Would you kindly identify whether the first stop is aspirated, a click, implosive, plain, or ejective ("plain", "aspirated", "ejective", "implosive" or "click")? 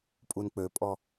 ejective